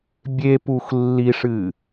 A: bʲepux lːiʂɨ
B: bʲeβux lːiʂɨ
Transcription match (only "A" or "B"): A